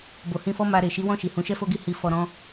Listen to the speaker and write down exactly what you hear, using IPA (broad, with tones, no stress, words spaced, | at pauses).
bo˨hĩ˧fɔ˦ ma˧ ɾe˨ ʃi˨˦wɔ̃˦˨ʃi˨ hũ˨˦ʃɛ˦fo˦ɡi˦˨ hi˧ fɔ˧ ɾɔ̃˦